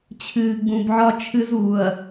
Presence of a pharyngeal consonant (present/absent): present